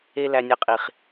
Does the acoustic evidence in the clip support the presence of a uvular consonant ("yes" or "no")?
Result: yes